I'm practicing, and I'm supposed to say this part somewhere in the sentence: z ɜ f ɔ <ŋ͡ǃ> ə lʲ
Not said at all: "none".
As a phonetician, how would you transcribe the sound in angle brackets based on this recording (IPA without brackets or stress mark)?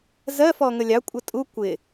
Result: ŋ